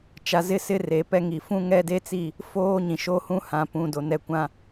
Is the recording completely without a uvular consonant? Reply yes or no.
yes